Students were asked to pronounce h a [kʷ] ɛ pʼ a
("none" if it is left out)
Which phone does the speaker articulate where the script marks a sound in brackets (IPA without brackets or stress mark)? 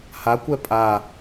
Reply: kʷ